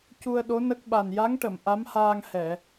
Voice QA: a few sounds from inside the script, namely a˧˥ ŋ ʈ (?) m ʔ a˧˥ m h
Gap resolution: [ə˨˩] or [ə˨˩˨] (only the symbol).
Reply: ə˨˩˨